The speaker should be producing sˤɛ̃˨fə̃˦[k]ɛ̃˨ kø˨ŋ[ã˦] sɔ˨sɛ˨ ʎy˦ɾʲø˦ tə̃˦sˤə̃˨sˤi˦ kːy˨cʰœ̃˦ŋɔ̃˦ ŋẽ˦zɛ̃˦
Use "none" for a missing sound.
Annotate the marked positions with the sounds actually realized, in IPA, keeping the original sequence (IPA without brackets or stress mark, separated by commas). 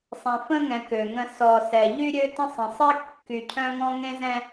ŋ, ə̃˦